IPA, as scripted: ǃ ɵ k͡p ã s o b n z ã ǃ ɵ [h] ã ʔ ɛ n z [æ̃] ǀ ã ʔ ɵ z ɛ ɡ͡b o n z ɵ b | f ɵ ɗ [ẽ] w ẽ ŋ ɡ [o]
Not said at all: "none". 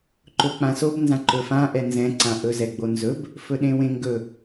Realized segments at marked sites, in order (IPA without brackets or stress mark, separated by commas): f, ɛ̃, ẽ, ɵ